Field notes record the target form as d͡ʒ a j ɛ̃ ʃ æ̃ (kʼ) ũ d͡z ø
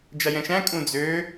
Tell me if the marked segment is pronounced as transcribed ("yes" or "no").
yes